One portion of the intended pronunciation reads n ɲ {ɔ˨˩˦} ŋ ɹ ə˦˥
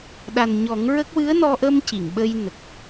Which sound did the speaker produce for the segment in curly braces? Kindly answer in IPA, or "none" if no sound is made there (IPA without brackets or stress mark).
ɔ˨˩˦